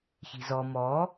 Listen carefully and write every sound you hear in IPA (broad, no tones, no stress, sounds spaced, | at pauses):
ç i̤ z ɔ m ɔ